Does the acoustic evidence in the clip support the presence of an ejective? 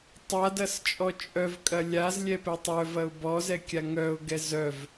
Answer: yes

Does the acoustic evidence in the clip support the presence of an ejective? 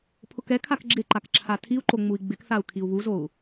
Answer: no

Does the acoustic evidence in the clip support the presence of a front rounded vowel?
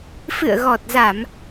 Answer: no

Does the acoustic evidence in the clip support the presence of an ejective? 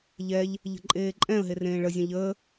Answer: yes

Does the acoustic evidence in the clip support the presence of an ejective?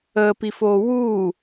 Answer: no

